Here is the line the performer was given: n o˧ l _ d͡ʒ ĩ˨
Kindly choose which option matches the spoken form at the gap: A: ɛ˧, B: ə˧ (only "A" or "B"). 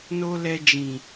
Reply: A